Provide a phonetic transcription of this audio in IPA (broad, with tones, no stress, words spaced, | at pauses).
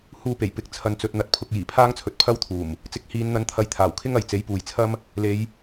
huː˧pe˨˩jpɪ˨˥k̚ t͡sʰɐ˨nt͡sɵ˨t̚ n̪ɐ˨˥t̚pʰʊ˧k̚jiː˨˩ pʰaː˥ŋt͡sʰɵ˨t̚pʰɐ˥wt̪ʰuː˨˩m | t͡sɪ˨˥k̚ hiː˨˧nn̪ɐ˨˧nt̪ʰɐ˨˧j t̪ʰaː˨˩wkʰɪ˥ŋɐ˨j t͡se˨˥jpuː˨jt͡sʰɐ˥m | le˨˧j